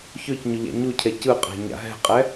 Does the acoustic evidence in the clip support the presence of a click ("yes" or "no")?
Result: no